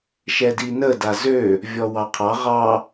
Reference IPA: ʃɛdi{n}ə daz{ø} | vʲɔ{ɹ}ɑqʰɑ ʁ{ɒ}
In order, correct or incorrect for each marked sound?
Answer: correct, correct, incorrect, incorrect

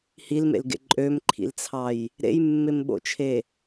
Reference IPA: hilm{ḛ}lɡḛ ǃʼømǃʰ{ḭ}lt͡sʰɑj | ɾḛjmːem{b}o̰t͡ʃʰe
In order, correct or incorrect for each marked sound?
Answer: correct, correct, incorrect

